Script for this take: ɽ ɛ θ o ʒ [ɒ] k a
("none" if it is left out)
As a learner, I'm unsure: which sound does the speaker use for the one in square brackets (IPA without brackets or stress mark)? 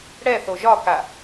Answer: ɒ